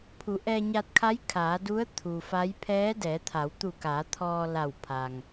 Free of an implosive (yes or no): yes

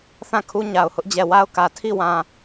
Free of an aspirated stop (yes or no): no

